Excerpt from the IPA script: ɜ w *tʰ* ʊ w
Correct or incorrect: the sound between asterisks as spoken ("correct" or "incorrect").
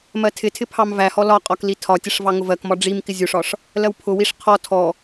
incorrect